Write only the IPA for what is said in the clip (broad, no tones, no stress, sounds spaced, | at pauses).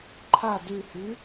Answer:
ǃʰ a d ʉ h y